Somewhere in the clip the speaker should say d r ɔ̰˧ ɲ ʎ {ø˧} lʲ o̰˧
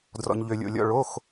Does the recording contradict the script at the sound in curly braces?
no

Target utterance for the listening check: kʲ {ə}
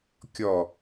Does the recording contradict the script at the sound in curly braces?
yes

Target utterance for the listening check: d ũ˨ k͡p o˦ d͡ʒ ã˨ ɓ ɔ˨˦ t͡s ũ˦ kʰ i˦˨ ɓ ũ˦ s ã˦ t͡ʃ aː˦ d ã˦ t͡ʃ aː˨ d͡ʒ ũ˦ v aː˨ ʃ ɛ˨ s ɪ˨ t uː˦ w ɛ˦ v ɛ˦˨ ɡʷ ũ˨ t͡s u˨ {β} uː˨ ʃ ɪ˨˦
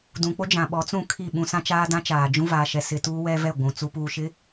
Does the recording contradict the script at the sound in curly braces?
yes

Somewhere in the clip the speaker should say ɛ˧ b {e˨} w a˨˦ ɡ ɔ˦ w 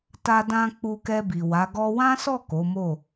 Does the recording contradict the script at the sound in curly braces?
yes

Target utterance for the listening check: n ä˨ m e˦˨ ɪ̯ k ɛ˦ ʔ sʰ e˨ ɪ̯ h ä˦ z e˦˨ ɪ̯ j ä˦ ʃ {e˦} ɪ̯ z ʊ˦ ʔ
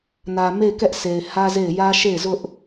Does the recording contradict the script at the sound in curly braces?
yes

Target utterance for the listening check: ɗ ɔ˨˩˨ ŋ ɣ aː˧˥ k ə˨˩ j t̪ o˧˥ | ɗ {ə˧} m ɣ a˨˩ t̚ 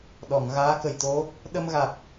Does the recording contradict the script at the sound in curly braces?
no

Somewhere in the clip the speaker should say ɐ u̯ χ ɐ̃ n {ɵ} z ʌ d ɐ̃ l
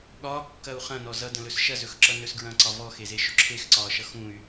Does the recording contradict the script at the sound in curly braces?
yes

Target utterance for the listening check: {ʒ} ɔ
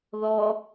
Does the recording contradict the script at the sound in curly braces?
yes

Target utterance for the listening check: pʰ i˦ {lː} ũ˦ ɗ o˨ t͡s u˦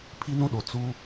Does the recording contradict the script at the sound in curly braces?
yes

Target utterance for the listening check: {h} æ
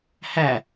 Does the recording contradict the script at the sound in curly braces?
no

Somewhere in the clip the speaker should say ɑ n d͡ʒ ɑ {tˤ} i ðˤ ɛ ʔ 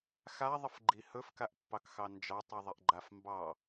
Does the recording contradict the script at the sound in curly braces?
no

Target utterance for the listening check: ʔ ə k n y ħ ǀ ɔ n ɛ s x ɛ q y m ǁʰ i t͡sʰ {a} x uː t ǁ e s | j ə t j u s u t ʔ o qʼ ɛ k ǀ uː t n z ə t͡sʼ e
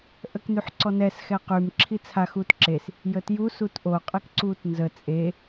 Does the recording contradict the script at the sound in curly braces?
no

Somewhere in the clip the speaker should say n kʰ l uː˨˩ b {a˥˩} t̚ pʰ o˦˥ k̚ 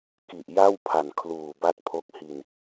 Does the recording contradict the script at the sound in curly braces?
no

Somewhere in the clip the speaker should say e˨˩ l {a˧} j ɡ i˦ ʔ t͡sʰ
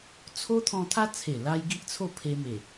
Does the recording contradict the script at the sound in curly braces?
no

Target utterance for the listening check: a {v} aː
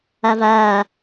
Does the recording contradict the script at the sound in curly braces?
no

